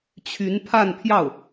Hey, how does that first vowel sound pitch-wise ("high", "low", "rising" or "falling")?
rising